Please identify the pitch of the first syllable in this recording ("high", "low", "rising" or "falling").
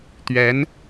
rising